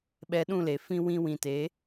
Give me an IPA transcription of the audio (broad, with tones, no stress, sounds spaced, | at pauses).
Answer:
ɓ ɛ˧ ɗ ũ˦˨ l e˨ f ĩ˧ w ĩ˧ w ĩ˨ t e˨˦